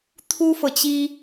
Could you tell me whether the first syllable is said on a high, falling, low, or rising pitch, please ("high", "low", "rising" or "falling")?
high